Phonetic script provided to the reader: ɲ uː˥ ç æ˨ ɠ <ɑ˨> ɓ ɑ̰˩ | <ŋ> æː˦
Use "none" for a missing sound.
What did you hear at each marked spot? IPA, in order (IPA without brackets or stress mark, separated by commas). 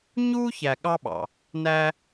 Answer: ɑ˦, n